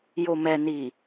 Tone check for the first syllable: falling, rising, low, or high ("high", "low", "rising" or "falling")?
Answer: low